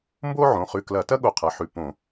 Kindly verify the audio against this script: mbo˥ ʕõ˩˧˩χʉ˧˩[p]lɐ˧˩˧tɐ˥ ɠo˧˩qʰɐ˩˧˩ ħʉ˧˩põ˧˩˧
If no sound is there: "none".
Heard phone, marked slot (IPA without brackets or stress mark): k